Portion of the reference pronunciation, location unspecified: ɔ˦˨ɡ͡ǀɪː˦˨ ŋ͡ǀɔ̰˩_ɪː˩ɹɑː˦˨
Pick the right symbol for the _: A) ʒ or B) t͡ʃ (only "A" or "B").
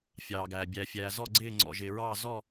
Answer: A